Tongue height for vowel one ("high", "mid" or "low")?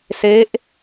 mid